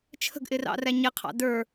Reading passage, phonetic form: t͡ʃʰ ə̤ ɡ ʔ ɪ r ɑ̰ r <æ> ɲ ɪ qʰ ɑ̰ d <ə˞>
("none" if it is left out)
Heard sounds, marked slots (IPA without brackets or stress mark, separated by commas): æ, ə˞